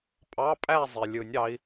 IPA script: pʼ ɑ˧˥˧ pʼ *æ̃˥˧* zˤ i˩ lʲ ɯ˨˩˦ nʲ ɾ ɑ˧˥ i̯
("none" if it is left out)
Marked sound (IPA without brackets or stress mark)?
æ˥˧